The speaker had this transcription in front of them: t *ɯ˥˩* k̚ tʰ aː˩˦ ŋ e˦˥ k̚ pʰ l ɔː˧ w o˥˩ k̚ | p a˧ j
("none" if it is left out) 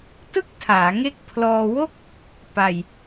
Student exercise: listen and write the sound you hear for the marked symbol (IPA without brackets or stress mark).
ɯ˥˩